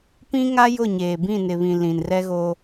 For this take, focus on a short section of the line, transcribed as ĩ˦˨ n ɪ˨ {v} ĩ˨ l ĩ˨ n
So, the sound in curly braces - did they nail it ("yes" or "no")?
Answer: no